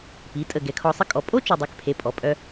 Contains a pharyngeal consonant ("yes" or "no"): no